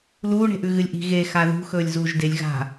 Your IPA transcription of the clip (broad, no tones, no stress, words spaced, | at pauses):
luːɳe̤ʔʉ ɣɨlʲʔi̤ ɣe xaðṳ xɵːlʲzuːʒdelʲ ɣa̤